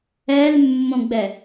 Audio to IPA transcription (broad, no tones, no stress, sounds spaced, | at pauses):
ɛ l mː õ ɡ͡b ɛ